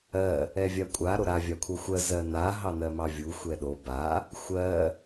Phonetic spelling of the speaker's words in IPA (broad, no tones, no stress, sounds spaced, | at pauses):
ɜ | ɛ vʲ a kʷʼ a ɾ o ɾ a vʲ a kʷʰ ɜ xʷ ɜ z ɜ n a ɦ ɑ n ɜ m ɑ vʲ u xʷ ɛ ɗ o b a | xʷ ɜ